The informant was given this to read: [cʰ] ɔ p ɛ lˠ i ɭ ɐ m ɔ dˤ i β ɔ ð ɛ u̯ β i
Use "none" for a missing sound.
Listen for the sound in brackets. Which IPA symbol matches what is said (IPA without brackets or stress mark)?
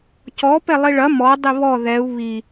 c